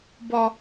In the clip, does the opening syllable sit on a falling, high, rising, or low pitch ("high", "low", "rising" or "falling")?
high